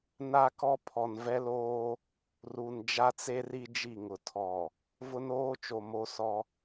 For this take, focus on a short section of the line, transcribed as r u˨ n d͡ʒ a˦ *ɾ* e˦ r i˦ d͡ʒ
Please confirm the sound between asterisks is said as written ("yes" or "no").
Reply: no